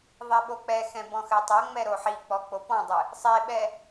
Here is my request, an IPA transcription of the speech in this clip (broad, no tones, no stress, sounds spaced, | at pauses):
ðˤ ɛ ɓ o k͡p ɛ x ɛ̃ b ɔ̃ x ɘ tˤ ɐ ŋ͡m ɛ ɾ o ħ i k͡p ɔ k͡p o p ɔ̃ dˤ ɨ | sˤ e ɓ ɛ